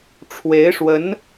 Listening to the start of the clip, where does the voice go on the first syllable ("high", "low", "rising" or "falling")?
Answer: rising